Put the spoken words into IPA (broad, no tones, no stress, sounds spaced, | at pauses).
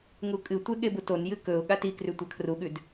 ŋ u kʼ ɨ tʷ e ɠ e b u t o n j ɨ k ɵ ʊ̯ ɠ a t i k r ʉ tʷ a kʰ r u ɠ ʉ d